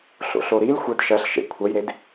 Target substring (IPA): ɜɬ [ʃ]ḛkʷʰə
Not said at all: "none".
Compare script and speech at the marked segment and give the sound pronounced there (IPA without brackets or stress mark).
ʃ